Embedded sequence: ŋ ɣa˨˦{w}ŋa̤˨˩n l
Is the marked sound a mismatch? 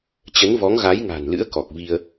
yes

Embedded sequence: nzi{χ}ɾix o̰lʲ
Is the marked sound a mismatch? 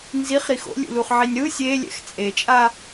no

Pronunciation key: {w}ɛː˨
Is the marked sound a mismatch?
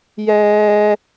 yes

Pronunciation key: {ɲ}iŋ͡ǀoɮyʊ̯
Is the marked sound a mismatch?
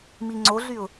yes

